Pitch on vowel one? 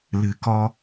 low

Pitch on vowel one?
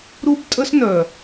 high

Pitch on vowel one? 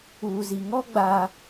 low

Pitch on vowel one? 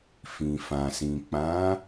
low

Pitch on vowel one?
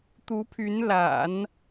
rising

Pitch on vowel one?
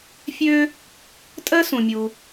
high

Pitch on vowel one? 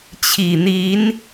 low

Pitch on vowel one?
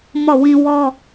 falling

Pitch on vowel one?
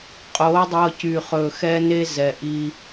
rising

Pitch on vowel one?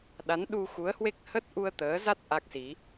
rising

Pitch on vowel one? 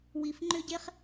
low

